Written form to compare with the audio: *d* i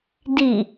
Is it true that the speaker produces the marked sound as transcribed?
yes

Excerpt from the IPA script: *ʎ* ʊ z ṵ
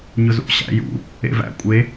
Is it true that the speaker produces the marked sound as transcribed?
no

